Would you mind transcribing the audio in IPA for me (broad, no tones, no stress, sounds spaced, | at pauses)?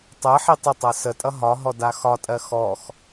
tˤ ɜ ħ i tˤ ə tˤ ɜ s ə tʼ ʌ ɦ ɒ ɦ ɔ d a x ɒ tʼ ɜ x ɔ x